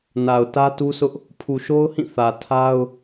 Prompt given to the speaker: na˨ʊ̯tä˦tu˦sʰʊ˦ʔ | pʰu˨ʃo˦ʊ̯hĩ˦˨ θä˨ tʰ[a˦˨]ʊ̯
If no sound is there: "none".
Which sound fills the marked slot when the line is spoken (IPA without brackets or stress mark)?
a˦